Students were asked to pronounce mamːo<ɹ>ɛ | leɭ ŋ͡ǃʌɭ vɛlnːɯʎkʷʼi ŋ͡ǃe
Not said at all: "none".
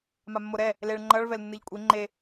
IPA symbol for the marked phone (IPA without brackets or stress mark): ɾ